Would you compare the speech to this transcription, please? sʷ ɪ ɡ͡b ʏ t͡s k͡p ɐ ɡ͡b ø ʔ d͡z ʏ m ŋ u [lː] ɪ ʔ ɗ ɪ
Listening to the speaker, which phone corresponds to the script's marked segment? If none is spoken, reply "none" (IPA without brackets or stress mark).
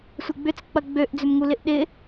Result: l